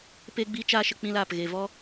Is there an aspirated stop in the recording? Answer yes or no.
no